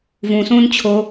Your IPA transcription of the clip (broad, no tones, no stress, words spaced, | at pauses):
vũsũːn t͡ɕʰo